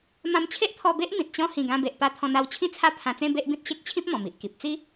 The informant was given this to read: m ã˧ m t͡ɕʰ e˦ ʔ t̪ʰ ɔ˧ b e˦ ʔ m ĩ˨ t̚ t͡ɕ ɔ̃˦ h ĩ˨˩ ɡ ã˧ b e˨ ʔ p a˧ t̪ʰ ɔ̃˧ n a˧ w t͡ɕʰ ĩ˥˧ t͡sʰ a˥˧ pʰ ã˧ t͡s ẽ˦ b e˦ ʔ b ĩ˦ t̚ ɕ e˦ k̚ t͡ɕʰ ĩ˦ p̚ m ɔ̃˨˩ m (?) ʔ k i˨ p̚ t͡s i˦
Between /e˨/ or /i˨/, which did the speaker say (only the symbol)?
i˨